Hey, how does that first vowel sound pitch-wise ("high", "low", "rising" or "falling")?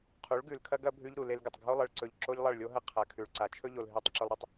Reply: rising